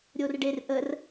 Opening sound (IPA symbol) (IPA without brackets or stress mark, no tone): ɾʲ